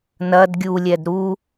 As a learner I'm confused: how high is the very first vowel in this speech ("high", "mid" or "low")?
low